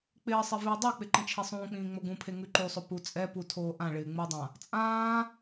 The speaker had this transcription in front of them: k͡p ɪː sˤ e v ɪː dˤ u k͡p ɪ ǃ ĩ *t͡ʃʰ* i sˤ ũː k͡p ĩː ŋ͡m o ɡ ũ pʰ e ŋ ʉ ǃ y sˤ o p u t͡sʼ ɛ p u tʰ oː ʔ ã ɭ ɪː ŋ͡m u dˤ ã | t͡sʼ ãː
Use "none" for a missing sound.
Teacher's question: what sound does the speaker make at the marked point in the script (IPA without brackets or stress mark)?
t͡ʃʰ